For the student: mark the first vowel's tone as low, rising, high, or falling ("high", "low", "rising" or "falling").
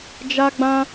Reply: high